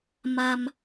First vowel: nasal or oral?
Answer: oral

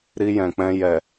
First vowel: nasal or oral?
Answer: oral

